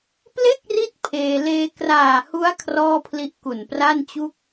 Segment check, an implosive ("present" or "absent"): absent